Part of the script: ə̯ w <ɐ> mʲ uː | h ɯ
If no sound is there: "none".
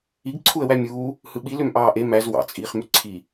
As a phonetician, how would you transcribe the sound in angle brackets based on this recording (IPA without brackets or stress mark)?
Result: æ